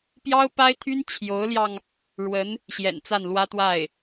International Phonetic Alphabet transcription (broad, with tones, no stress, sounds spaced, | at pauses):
p j ɑ˥ ʊ̯ p a˥ ɪ̯ t̪ʰ y˥ n t͡ɕʰ j o˧˥ ʊ̯ l j ɑ˧ ŋ | ɻ w ə˧˥ n | ɕ j ɛ̰˨˩ n t͡s a˥˩ n l w ä˥ t̪ w a˥˩ ɪ̯